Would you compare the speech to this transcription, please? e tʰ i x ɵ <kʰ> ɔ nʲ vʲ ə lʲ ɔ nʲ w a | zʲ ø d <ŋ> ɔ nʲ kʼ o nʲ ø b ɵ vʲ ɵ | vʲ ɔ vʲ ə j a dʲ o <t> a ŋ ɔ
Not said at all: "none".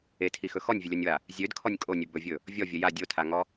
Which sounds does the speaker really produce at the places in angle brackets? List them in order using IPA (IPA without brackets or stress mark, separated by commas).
x, kʰ, tʰ